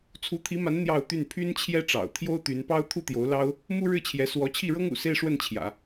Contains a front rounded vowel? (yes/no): yes